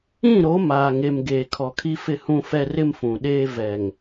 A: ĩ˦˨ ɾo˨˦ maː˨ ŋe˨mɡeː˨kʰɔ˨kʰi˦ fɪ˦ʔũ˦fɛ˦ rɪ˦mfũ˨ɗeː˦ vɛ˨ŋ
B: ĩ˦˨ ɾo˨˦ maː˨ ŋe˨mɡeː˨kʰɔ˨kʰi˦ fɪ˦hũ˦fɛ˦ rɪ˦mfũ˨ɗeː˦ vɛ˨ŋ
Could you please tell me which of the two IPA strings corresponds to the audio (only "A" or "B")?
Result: B